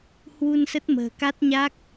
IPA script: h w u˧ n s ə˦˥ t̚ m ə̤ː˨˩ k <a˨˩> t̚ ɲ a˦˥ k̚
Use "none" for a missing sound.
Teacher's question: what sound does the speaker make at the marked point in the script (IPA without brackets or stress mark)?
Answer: a˦˥